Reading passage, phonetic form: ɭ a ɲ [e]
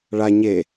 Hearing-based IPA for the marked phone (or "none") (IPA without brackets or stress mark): e